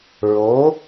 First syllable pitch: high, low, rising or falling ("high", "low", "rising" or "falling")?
rising